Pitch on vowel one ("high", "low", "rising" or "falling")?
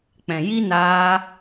low